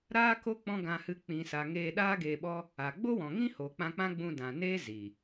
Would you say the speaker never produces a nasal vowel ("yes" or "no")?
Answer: no